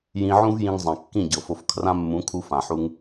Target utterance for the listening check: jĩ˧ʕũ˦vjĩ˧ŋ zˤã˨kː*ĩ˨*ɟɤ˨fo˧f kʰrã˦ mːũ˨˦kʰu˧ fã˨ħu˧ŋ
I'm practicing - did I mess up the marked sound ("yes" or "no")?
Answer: yes